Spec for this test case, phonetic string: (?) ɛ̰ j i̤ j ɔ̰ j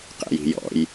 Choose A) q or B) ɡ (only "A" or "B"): A